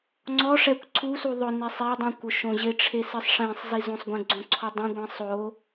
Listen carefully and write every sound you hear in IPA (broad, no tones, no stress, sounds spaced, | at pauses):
ŋ͡ǀ ɔ ʂ ɛ kʷ ǀʰ u s u ðˤ ʊ n e sˤ e dˤ ĩ kʷ ʊ ʃ õ ʑ ɪ ʈ͡ʂʰ e s ɪ sˤ ʂ ẽ sˤ z i z õ sˤ ɡʷ ẽ ɡ͡ǀ õ ǀʰ ɔ dˤ ĩ ɡʷ ĩ sˤ o